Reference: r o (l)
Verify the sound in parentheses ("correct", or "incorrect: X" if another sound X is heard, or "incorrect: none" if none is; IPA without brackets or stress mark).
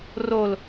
correct